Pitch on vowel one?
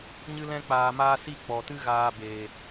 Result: high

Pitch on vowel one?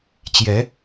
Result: rising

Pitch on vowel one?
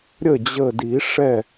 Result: falling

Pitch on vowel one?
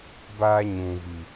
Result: high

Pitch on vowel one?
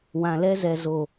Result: low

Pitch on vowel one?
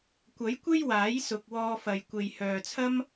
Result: rising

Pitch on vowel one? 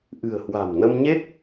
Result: low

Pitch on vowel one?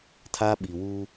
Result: high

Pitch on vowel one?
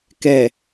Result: low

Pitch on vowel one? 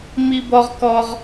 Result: high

